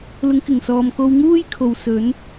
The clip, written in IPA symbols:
l ʊ˨˥ ŋ k ɪ˨˩ ŋ s ɔː˨ m k o˧ w ŋ uː˥ j kʰ o˨ w s ɵ˨˥ n

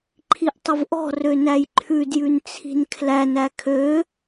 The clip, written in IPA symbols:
ǃʰ i ʔ tˤ ə v ʔ ɔ̤ r ø n æ j ǃʰ ʉ d j ʉ n t͡sʰ i̤ n kʰ l æ n æ kʰ ø

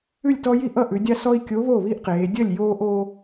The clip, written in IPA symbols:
ʉ˥˩ lʲ t ɔ˦ j i˥˩ ʔ ʌ˥˩ ʔ ʉ˩˧ dʲ a˦ s ɔ˦ i̯ kʲ o˨˥ β o˥˩ β i˦ ʔ q eː˩˧ dʲ ʌ˥˩ lʲ j oː˦ ʔ o˦

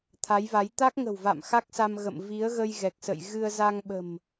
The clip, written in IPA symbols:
t̪ʰ a˨˦ j v a˨˦ j t̪ a˦˥ k̚ ŋ ə̤˨˩ w v a̰˧˨ m x a˦˥ k̚ s a˧ m ɣ ə̰˧˨ m v i˨˦ ə̯ ɣ ə˧ j ɣ ɛ˨˩ k̚ s ə̰˧˨ j ɣ ɨ˧ ə̯ z a˧ ŋ ɓ ə̤˨˩ m

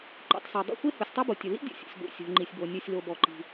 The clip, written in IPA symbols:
ǃ ṵ˩ tˤ s a˩ dˤ ṵ˥ xʷ e˥ h u˩ sʲ tˤ a˥ b o˩ tʲ ʊ˩ l ḭ˥ dʲ ṵ˩ sʲ ɔ̰˩ sʲ ɡʷ ḭ˩ sʲ ɔ̤˩ ŋ͡ǃ i˩ sʲ b o˩ nʲ u˩ sʲ l o˩ b ɔ˩ ǃ i̤˩

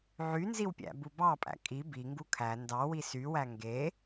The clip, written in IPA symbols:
ʕ y n z i w pʲ æ̰ b u b ɑ pʼ æ̰ kʼ i b i ŋ ɡ u kʰ æ n d ɑ w i s y w æ ŋ ɡ e

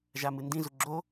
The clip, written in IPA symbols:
ʒ a m ɨ n d ĩ z u ɡ͡ǁ o

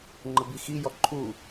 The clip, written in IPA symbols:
ŋ͡ǃ ə b i x i j ɔ ǃʰ u

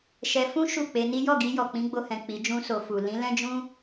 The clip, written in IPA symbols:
ʃ ɛ˧ f ũ˦ ʃ u˦˨ k͡p e˧ n i˦ j ɔ˦˨ ɡ i˧ j ɔ˨ k͡p ĩ˨˦ ɡ͡b o˧ h ɛ̃˨ k͡p i˨˦ d͡ʒ ũ˦ s o˧ f u˨ l ĩ˨˦ l ɛ̃˦ d͡ʒ ũ˦

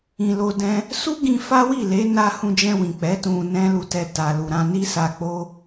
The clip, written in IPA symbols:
ĩ˨ l o˧ d ɛ̃˦ | s u˦ ɡ ĩ˧ f a˦ w i˦˨ l e˨˦ n a˧ h ũ˧ d͡ʒ ɛ̃˧ w ĩ˨ k͡p ɛ˨˦ t ũ˧ n ɛ̃˦ l u˧ t ɛ˧ t a˨ l u˨ ɾ ã˧ n i˦ s a˧ k͡p o˦

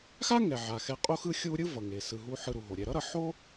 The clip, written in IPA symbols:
x a˥ ŋ ɛ˩ ʕ a˩ x ɛ˨ qʼ o˦ x ɯ˦ xʲ u˦ ɾʲ ɯ˥ v ʌ˩ ŋ e˩ s ɯ˩ ɦ u˨ ħ ɯ˨ ɾ u˩ ɦ o˩ ɾʲ ɛ˨ ɾ ʌ˥ ɾ ʌ˩ ħ o˥

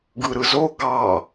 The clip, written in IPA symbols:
ɡ ɯ ɾ ɯ z o ɡ ɑ

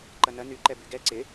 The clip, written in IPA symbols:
ǃ ɐ n ɐ n y ǃ ɛ b y ɡ ɛ ǀ ɪ

